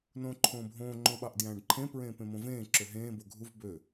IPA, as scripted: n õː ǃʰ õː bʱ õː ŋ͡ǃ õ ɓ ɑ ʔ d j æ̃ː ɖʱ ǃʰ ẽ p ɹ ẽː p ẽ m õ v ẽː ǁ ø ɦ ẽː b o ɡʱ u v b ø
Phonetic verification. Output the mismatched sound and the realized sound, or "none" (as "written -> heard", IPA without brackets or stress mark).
ɖʱ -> ɖ